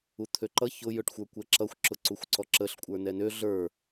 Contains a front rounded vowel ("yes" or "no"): yes